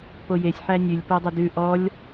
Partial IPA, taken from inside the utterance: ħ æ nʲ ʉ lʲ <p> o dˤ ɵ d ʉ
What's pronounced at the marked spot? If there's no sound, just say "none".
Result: p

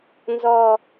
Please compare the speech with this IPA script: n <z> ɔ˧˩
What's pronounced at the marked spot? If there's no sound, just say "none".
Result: z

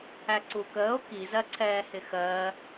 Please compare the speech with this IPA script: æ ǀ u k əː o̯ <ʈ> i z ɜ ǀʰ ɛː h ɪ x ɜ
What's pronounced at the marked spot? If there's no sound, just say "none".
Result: k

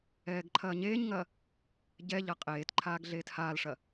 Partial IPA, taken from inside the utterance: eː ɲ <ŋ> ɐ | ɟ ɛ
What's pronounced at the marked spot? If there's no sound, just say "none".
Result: ŋ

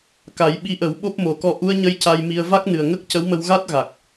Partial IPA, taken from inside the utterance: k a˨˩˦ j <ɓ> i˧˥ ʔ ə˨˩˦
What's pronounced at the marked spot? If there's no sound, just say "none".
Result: ɓ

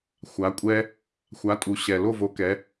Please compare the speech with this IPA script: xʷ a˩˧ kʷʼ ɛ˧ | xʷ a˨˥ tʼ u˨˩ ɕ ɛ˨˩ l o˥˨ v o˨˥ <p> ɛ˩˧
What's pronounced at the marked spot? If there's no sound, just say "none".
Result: k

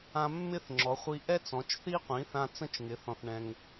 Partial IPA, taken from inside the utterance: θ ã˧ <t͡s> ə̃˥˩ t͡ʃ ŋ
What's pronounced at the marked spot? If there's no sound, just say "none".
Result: t͡s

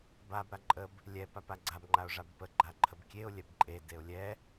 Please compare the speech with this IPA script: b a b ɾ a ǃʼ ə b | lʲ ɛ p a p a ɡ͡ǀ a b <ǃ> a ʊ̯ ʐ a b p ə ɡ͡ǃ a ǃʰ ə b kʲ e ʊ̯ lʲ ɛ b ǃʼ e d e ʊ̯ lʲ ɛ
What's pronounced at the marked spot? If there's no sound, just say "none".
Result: ŋ͡ǃ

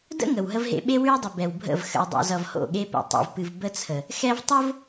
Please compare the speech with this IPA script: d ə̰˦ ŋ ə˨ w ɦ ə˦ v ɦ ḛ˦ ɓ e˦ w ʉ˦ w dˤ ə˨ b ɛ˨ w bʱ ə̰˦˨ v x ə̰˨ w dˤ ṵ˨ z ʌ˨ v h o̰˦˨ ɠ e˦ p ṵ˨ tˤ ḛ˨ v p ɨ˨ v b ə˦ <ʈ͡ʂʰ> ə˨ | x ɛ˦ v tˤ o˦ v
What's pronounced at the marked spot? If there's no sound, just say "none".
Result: t͡sʰ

